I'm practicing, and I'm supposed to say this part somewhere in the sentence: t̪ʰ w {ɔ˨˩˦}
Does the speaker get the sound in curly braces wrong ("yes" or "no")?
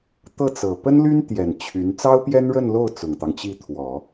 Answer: no